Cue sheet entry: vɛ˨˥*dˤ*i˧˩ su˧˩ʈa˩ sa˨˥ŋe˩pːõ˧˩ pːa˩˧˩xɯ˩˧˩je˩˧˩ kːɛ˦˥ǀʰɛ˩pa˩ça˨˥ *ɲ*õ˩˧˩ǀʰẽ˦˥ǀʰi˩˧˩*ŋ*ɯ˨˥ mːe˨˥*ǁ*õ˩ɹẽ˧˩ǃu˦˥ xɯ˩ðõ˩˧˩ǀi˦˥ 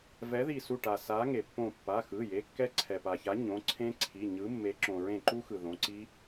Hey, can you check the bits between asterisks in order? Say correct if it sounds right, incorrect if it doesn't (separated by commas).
incorrect, correct, incorrect, correct